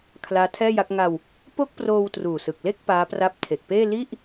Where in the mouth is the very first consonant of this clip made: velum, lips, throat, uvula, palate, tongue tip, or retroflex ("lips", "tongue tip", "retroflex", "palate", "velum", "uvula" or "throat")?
velum